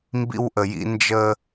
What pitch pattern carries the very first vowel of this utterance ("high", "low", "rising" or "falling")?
high